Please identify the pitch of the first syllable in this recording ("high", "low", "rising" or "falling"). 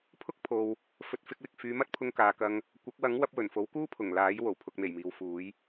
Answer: high